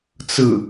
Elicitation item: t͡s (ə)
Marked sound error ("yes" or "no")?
yes